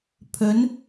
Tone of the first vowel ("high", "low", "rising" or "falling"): rising